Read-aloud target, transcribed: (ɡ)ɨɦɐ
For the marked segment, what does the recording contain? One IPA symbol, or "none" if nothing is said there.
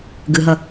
ɡ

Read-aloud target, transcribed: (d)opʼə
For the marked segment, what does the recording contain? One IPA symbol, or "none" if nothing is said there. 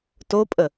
t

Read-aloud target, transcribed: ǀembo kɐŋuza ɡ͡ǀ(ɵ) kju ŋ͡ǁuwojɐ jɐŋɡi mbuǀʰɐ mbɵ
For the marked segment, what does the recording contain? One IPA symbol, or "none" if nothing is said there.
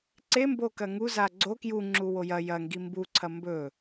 o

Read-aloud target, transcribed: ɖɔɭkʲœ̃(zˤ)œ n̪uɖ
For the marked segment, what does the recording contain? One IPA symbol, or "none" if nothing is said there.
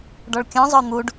zˤ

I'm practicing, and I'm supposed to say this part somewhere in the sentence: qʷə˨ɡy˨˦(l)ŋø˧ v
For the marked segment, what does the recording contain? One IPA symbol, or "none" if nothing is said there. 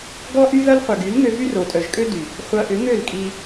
l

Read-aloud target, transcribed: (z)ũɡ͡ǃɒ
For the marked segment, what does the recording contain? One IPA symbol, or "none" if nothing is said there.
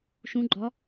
ʃ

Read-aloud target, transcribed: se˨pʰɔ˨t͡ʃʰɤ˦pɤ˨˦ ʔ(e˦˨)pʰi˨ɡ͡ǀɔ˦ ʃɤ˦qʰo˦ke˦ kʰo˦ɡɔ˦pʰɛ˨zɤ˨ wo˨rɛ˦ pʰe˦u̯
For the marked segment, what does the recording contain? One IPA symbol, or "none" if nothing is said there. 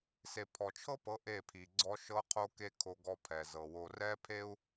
e˦˨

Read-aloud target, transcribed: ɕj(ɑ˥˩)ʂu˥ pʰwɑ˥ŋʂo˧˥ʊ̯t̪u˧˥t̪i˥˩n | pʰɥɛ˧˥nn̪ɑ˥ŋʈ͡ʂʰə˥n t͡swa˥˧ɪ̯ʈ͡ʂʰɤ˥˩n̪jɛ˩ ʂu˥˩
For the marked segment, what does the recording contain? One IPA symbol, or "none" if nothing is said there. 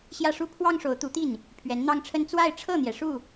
ä˥˩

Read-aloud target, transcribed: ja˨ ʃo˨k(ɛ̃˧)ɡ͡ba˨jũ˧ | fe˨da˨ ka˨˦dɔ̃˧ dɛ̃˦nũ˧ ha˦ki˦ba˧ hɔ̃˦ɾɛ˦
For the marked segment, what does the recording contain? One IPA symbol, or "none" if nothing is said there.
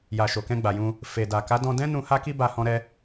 ɛ̃˧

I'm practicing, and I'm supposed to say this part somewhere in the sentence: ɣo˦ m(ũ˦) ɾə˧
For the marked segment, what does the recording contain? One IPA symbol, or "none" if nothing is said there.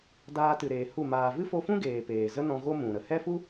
ũ˨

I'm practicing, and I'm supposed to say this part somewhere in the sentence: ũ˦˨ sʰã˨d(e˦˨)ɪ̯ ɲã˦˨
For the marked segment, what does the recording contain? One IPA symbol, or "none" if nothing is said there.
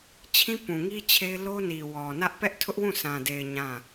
e˨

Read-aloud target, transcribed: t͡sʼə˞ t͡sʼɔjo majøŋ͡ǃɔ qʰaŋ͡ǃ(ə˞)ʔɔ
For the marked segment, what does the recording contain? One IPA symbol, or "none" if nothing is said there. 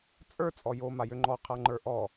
ə˞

